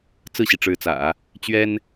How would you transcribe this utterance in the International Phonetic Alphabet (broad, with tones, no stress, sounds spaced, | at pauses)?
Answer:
t͡s ɹ̩˥˩ ɕ i˩ ʈ͡ʂ ɻ̩˧˥ t͡s ä̰˨˩˦ | t͡ɕ ɥ ɛ˥ n